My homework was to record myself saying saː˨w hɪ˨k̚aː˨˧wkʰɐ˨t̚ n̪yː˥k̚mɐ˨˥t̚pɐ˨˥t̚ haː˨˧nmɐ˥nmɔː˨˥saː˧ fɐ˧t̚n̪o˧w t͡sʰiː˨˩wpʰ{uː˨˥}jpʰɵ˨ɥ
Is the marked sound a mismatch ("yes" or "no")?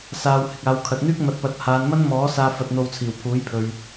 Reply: no